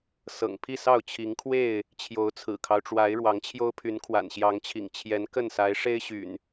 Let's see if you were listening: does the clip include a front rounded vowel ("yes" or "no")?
yes